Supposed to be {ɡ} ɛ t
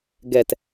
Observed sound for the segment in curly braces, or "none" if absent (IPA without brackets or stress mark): ɡ